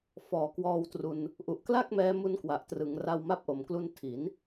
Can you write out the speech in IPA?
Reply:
fɔː˩˦kwɔː˧wtru˧n | ʔu˨˩ʔkla˥˩k̚mɛː˧ mu˦˥nkwa˨˩ʔtrɯ˩˦ŋra˧w ma˦˥p̚ʔo˨˩mklu˧n tʰi˩˦n

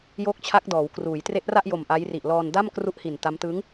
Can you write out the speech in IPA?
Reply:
joː˦˥k̚t͡ɕʰa˦˥k̚dɔː˩˦wkruː˩˦j tre˦˥ʔra˥˩ʔjo˨˩m ʔa˦˥j ri˨˩ʔlɔː˧n da˥˩mkru˦˥ʔ hi˨˩nta˦˥m tɯ˦˥ŋ

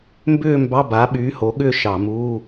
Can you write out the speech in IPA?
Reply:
mbʏː˥˧ mbɑ˧˥˧ba˨˥ɓyː˨˥ ho˨˥ ɠʏː˥˧ʃɑ˧˩˧muː˧˥˧

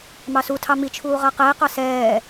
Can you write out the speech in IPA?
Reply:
mɑsutʰɑ mit͡ʃʰuː ʁaqɛe̯qɑ sɛː

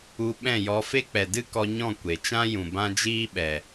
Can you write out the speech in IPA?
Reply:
u˧ ɓɛ̃˦˨jɔ˧fe˦ k͡pɛ˨dɨ˦kɔ˧ɲɔ̃˦˨ kʷe˨t͡ʃã˦jũ˨ bã˦d͡ʒiː˦ɓɛ˨

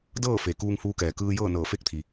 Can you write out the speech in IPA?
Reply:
dɤː˥˨fe˩ kuː˧ŋhuː˧kɛː˩ kɯː˧jɤː˥˨ nɤː˧˩fe˥˨k̚t̪ʰi˩

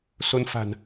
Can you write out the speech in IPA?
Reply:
so˧n fa̤˨˩n

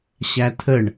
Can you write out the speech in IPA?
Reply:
ɕæt̪ʰəɳ

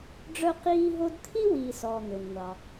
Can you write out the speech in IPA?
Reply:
ɖ͡ʐœ˦qiː˦ɦo˦d t̪ʰi˥wiː˨sɔː˩ n̪ø˩nŋʷɑ˩

